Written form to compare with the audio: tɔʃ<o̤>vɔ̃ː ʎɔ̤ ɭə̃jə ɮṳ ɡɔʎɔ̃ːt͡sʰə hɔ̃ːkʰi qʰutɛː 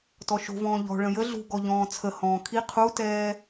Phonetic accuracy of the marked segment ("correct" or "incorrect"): correct